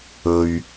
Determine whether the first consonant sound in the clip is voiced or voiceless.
voiced